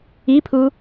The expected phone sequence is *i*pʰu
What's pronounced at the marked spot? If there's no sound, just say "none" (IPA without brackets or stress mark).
i